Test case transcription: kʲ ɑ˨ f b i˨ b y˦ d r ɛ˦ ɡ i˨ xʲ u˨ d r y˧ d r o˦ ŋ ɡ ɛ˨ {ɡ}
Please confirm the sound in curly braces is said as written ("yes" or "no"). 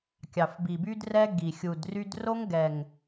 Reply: no